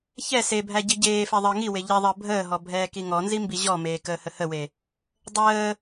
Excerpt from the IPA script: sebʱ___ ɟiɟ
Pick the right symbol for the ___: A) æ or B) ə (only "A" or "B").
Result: A